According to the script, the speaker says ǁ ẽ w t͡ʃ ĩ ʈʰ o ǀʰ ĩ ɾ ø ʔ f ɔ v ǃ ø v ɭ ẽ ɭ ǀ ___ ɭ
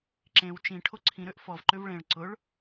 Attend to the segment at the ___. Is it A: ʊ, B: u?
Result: A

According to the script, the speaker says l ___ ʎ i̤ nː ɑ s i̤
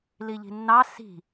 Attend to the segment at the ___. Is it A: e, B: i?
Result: B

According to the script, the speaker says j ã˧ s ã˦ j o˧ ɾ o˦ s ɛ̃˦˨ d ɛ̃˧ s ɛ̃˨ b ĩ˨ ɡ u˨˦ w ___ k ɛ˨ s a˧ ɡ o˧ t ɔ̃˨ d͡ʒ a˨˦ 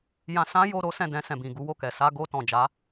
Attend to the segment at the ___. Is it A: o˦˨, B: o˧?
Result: A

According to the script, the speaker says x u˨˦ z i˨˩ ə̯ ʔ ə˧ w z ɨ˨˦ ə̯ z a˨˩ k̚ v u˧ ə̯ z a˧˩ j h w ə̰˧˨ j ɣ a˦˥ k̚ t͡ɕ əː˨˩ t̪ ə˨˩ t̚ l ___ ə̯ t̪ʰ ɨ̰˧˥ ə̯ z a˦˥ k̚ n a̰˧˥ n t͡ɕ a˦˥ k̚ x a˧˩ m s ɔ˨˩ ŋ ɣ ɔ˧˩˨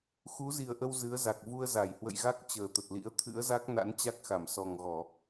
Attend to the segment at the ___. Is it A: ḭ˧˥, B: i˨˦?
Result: A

